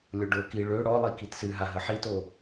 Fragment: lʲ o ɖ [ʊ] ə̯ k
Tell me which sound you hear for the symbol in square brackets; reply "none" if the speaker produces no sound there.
ʊ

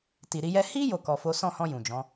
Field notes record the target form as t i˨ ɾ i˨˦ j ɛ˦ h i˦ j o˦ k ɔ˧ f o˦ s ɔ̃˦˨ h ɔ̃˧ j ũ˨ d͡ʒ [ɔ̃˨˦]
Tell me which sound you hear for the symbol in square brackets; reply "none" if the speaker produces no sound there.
ɔ̃˨˦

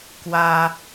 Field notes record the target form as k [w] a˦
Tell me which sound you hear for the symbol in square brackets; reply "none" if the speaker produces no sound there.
w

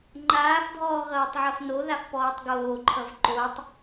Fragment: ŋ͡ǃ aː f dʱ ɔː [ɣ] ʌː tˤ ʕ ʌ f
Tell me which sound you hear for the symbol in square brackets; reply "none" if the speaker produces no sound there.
ɣ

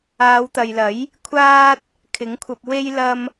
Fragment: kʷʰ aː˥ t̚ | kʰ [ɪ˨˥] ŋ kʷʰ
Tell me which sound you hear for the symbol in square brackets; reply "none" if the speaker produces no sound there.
ɪ˨˥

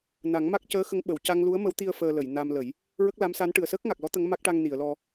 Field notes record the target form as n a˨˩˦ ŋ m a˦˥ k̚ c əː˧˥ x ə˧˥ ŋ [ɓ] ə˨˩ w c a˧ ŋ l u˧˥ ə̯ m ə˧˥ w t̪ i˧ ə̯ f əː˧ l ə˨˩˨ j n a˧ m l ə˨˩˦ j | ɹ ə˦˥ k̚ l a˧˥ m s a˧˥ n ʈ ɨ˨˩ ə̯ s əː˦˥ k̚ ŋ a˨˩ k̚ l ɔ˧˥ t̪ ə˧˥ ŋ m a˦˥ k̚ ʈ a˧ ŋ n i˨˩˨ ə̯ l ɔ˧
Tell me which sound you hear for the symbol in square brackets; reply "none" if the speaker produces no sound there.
ɓ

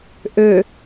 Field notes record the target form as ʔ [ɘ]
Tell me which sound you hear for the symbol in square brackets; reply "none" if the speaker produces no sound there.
ø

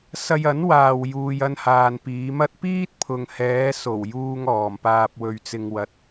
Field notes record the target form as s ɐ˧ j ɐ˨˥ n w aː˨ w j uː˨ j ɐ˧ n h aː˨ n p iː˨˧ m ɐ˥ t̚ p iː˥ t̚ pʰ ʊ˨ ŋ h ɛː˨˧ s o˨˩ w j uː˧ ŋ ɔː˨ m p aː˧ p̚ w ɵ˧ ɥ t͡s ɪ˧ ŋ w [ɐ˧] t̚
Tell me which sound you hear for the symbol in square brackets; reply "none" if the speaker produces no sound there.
ɐ˨˥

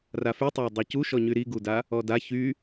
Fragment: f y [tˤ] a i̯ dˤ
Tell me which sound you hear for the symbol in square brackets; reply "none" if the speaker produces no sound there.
tˤ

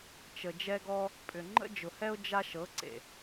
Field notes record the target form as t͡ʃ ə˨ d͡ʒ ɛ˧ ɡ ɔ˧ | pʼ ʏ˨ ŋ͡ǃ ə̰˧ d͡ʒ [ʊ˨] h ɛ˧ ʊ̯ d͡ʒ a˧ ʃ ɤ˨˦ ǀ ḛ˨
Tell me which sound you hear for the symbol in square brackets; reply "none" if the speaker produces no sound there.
ʊ˨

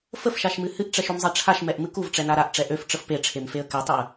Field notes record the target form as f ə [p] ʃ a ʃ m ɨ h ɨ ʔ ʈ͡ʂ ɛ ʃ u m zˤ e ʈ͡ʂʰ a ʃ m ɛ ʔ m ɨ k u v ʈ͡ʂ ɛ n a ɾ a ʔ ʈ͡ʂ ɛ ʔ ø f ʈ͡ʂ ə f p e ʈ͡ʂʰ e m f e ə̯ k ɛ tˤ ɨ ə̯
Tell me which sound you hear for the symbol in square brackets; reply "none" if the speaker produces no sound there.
f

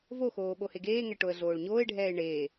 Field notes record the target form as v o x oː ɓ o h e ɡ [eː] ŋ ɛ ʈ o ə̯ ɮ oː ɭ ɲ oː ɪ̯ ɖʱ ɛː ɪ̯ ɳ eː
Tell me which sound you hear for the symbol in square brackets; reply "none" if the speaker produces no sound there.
eː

